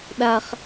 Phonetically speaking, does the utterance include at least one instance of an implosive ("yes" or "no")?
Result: yes